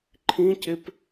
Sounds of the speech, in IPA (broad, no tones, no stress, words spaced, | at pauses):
ǃʰĩcep